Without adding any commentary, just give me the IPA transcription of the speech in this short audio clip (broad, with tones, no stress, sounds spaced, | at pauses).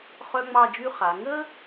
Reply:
χ œ˥ ŋ͡m ɑ˥˧ d͡ʒ y˥ χ a˩˧ ŋ ə˥